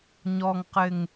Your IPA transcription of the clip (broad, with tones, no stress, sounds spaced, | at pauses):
ɲ ɔ˨ ŋ q ɪ˨ ŋ